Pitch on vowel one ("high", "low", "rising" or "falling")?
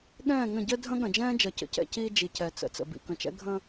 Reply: falling